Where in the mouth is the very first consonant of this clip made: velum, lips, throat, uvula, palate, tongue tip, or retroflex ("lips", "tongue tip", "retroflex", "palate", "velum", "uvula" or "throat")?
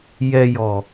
palate